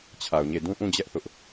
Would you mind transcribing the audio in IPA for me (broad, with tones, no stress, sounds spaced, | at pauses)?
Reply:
t͡ɕʰ a˨ ʊ̯ ɲ e˦˨ d ũ˦ ʔ ũ˦˨ d͡ʑ ɛ˦ ʔ θ ʊ˦ ʔ